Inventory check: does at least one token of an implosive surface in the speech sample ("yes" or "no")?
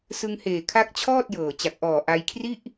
no